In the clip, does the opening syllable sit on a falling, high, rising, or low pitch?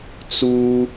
high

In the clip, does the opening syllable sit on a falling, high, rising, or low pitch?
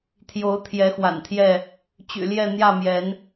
rising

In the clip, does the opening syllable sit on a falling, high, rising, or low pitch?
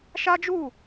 high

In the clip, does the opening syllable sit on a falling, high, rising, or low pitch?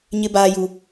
high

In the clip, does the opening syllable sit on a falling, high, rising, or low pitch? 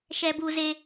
high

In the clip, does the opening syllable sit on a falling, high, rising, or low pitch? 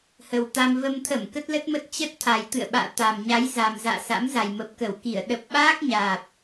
low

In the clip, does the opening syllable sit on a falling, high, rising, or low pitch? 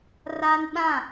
high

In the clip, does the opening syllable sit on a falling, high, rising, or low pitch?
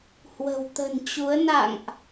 low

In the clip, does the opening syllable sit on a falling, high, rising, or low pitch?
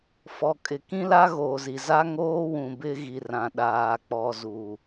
low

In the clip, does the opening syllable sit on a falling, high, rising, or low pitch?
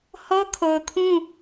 high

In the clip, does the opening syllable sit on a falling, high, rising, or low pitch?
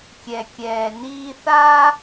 low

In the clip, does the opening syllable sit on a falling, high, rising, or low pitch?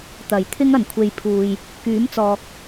low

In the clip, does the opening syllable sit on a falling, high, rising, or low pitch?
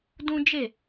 high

